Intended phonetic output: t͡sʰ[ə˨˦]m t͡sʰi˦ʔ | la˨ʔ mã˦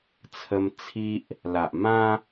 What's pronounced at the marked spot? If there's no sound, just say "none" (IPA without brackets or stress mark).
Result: ə˦